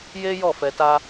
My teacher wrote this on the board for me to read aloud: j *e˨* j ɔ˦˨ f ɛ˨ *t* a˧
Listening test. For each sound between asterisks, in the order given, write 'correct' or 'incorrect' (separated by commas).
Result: incorrect, correct